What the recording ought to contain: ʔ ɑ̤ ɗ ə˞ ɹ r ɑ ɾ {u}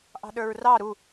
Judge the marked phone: correct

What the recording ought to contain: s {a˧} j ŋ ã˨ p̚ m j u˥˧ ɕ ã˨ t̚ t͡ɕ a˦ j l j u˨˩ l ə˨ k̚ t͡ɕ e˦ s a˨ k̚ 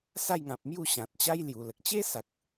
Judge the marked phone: incorrect: a˥˧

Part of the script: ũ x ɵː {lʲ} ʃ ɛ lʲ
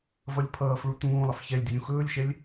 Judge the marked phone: correct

